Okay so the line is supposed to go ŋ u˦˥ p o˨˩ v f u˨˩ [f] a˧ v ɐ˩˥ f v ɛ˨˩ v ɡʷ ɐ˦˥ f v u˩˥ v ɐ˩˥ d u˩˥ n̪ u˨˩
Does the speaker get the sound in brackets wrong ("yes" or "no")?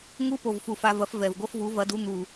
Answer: no